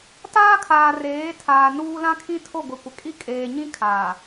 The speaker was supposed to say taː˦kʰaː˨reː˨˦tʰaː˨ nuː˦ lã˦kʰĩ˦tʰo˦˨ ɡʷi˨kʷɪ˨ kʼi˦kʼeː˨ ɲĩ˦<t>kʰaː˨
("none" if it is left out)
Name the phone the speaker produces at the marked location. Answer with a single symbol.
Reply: none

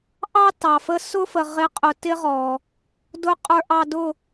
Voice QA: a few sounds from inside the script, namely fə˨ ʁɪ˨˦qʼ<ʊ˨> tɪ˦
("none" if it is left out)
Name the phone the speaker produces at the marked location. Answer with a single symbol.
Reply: ʊ˨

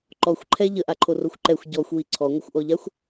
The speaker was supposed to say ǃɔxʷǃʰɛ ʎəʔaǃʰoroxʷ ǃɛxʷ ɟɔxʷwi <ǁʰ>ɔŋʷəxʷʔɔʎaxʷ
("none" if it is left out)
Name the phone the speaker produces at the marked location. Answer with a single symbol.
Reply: ǀʰ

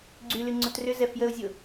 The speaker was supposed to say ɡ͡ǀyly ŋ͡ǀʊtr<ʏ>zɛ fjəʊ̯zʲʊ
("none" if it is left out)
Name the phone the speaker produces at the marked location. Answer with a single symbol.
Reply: ʏ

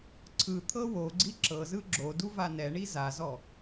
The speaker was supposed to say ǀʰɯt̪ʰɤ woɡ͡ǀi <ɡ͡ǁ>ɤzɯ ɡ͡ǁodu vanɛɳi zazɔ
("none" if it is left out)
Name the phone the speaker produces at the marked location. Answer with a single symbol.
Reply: ǁ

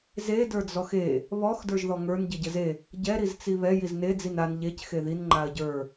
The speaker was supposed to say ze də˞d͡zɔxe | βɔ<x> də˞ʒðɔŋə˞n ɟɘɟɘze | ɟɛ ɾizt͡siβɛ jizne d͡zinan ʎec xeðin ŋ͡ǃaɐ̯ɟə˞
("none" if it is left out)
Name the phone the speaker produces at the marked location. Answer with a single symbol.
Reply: x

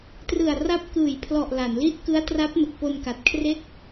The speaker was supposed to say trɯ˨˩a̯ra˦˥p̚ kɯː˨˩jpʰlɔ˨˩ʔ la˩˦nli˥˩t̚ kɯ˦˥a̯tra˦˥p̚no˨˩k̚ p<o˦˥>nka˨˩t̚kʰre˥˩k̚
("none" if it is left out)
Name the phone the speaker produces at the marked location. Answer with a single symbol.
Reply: o˧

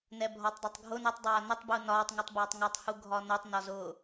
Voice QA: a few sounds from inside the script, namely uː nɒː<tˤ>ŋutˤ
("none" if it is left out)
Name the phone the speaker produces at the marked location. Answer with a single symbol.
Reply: tˤ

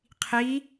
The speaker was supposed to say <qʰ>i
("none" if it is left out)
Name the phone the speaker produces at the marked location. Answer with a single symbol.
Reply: qʰ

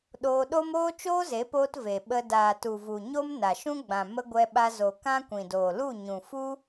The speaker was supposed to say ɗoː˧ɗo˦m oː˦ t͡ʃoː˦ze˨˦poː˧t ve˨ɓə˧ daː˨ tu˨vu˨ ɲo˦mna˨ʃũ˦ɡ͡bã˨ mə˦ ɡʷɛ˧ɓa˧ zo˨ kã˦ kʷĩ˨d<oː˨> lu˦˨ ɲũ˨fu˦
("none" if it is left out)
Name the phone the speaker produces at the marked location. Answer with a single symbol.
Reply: oː˨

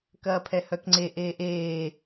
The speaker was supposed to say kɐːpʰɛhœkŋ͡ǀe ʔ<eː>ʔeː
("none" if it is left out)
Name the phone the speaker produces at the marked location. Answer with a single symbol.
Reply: eː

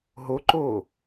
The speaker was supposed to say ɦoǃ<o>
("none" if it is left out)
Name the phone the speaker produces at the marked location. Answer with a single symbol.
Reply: oː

